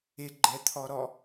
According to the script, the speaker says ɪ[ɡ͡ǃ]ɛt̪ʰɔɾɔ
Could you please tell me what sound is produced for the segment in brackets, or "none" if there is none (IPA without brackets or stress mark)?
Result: ɡ͡ǃ